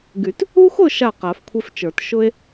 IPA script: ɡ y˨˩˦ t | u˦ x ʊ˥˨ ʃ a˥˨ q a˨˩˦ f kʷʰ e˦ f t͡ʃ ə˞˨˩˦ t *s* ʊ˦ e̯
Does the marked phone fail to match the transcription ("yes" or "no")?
yes